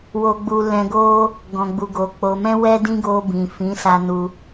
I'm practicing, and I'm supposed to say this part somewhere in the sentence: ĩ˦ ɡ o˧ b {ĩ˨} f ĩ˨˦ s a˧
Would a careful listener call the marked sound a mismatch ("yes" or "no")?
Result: no